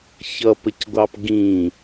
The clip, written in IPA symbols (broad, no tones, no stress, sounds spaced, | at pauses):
ç ʌ p ə c ɡʷ ɑ p ɡ ĩ